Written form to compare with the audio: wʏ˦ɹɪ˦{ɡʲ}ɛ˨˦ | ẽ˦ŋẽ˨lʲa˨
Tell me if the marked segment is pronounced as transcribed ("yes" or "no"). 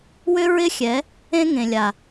no